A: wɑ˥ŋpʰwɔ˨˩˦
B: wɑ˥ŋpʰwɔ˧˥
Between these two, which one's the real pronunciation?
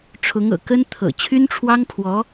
B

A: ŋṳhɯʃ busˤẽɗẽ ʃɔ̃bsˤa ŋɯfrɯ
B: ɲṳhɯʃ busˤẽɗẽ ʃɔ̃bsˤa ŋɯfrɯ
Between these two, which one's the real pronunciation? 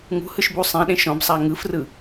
A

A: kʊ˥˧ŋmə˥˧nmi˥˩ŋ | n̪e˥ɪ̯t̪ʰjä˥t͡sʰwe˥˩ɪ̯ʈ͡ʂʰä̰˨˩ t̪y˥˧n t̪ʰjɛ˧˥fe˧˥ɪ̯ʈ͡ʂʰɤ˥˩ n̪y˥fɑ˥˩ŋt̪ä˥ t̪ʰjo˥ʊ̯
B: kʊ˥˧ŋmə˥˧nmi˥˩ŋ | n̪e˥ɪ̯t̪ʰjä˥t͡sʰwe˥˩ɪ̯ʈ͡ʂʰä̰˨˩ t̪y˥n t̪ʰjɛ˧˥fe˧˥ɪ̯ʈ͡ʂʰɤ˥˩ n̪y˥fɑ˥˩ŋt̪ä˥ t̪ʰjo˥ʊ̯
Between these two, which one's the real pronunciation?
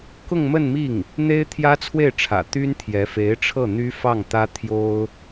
B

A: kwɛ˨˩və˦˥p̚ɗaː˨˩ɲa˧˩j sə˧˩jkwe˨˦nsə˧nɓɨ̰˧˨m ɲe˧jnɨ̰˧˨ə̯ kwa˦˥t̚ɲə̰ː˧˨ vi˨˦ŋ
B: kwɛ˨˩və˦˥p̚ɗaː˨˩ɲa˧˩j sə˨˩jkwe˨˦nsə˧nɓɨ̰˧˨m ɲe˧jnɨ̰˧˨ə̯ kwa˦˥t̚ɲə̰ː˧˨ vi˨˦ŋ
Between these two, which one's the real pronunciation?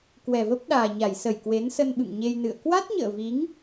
A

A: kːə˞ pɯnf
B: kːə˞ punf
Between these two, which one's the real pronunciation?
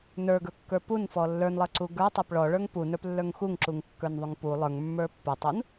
B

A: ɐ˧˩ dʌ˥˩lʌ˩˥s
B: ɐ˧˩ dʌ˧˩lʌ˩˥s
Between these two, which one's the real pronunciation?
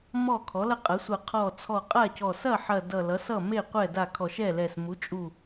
B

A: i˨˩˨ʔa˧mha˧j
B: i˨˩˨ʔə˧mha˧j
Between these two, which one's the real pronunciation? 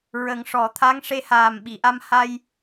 A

